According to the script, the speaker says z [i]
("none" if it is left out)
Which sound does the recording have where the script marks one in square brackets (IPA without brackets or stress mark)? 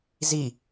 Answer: i